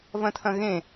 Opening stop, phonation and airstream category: aspirated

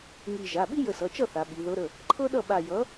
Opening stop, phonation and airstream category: implosive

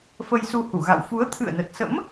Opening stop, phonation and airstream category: aspirated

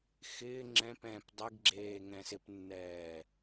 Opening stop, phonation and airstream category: click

